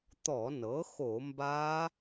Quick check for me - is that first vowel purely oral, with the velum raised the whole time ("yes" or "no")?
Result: yes